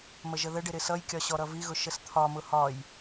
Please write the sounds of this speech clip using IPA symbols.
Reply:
məʒəðəɖɪ ɾɪsʌjkʲɒ ɕɔɾʌviɣʊ ʃəst̪ʰɒmʊ hɒj

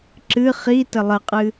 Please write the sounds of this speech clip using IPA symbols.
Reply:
ǁɨ χi təlˠəqʼɨ

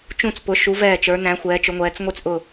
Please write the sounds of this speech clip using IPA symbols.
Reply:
t͡ʃũ˥˧t͡spʊ˧˥ ʃu˧˥vɛː˥˧t͡ʃə˞˧˥ næ̃˧˥xʷɛː˧˥t͡ʃʊ˧˥ŋʷɛː˧˥t͡s ŋʷi˥˧t͡sʔʊː˥˧

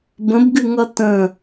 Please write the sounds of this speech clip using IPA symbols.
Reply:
bə̃bɡɨŋʌ tə̃

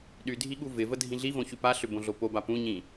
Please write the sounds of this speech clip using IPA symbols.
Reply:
ɗydʱi ɠuvɪvə dʱĩɮivõ çypaɬʏ bõɮopoba pũɲĩ

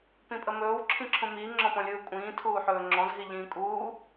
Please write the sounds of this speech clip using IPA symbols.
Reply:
pĩpʼəmɵːw ǁʰĩǁʰũmiː ŋ͡ǁɔ̃pɔ̃lʲɯːkʷʼĩː tʰuːħɵːŋ͡ǁɔ̃z ɦiʎĩːkʼuː

